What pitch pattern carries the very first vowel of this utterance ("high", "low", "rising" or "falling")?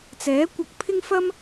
rising